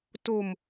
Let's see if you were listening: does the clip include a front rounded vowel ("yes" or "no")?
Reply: no